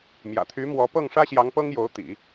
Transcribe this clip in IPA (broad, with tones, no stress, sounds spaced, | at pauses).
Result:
m j ä̰˨˩ t̪ʰ y˧˥ m w ɔ˧˥ p ɤ˥˩ ŋ ʂ ä˥ ɕ j ɑ˧˥ ŋ p ɤ˥ ŋ j o˧˥ ʊ̯ t̪ ḭ˨˩˦